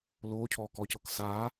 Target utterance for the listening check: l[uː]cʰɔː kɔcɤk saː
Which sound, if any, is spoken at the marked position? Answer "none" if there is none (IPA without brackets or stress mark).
oː